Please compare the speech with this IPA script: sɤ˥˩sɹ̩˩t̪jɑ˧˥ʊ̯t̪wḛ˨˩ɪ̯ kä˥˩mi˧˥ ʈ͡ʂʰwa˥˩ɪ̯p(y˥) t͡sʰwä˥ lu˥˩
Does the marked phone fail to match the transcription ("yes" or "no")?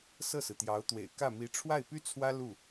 no